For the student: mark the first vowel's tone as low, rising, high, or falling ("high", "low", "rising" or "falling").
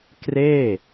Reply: falling